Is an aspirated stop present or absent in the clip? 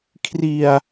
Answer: present